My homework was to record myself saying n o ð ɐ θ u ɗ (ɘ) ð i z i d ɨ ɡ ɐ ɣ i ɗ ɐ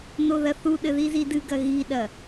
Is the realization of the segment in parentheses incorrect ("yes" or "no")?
no